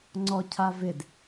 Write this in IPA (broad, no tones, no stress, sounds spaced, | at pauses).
ŋ͡ǀ ɔ cʰ a v ɪ d